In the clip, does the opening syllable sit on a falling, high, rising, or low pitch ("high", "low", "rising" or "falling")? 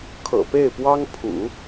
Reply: low